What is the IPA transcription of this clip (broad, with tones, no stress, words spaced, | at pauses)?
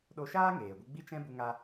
ɗo˧ʃaː˦ŋeː˨ɡʷə˧ ɡ͡bi˧t͡ʃɛ̃˧ bu˦ŋa˦